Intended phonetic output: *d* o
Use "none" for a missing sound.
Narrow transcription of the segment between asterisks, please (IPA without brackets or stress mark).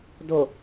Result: d